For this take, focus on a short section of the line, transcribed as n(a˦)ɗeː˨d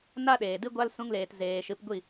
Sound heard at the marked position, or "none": a˦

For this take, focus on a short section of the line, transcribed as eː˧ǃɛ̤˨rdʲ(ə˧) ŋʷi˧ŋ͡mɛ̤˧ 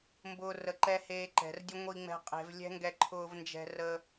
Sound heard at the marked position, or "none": ə˦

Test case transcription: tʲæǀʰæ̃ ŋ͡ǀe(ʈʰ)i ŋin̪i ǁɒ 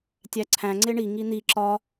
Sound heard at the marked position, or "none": ɳ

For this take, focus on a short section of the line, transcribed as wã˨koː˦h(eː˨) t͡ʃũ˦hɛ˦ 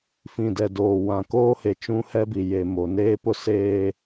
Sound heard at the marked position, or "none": e˨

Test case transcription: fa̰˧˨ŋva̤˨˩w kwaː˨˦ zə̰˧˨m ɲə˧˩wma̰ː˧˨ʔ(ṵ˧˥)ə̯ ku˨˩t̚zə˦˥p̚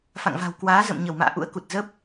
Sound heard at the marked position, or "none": ṵ˧˥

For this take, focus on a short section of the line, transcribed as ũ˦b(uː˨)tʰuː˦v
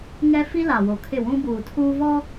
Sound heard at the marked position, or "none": uː˨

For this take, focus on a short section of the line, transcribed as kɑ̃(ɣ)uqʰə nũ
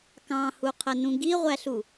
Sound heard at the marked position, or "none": h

